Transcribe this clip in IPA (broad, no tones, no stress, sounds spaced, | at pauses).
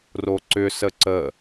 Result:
r o ǀ ʏ s ə ǀ ə